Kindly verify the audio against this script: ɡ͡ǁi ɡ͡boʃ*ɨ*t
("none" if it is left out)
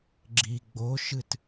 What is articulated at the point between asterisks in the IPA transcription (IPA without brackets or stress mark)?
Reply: ɨ